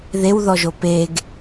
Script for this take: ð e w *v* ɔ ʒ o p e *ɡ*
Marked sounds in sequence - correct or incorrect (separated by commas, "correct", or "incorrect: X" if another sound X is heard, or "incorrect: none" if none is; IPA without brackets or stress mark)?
incorrect: ð, correct